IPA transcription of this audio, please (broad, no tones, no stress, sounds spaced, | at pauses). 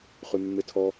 χ y mː e tʰ ɔ